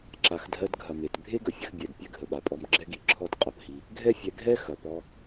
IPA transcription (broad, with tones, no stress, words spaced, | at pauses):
ǁa˨xdʱɜ˧dɡʱɐ˨ me˨t bʱe˦ɡə˨fʲə˧x bʲɛ˨d pʲɛ˦ɡʱə˨ɓa˨pʼɔ˧m ɡ͡ǁɛ˦ɡi˨ ǁʰɔ˦tqʼɐ˧phi˧ | ɡʱɛ˦fʲɛ˧ɡʱɛ˦ xɐ˨pɔ˧